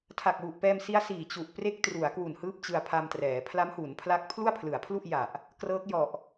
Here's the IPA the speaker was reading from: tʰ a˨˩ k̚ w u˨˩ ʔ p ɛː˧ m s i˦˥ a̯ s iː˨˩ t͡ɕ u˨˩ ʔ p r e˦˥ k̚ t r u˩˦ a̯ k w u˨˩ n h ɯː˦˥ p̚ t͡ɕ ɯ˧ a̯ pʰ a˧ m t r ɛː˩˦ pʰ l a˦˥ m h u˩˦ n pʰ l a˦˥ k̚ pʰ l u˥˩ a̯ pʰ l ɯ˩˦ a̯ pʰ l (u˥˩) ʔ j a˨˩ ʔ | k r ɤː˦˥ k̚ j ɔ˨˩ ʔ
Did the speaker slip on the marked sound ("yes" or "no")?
no